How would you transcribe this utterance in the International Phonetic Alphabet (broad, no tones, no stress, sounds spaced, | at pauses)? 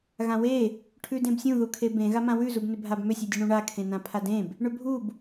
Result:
ɣ ã w e | ʈʰ ʉ d ẽ b sʲ ũ ð u kʰ e b ẽ ɣ a m ã w ʉ z u b n ʏ bʱ a b m ʏ sʲ ʉ dʲ ʉ ɳ ũ ɳ a kʰ ẽ n ã pʰ a d ẽ b | ɳ ʏ bʱ u b